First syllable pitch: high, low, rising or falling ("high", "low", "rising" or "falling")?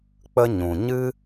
high